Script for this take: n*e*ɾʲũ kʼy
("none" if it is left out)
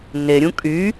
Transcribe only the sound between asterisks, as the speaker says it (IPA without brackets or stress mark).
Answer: e